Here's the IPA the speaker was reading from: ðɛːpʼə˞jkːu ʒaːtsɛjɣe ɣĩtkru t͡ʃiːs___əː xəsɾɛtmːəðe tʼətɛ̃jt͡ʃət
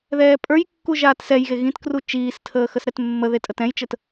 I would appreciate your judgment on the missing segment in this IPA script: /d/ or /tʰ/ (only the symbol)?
tʰ